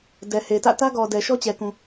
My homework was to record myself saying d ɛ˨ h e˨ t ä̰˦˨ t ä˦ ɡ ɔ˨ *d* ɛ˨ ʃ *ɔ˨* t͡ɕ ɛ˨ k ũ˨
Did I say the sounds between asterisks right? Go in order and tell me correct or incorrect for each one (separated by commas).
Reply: correct, incorrect